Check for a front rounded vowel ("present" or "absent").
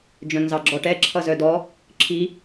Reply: present